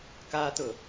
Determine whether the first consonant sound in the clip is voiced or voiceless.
voiceless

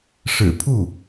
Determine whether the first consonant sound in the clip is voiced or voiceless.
voiceless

